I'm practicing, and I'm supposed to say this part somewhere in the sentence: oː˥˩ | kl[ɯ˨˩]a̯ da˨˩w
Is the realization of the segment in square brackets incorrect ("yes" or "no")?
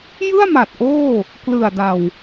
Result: no